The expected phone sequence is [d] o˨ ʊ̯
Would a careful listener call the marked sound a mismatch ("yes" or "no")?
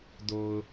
no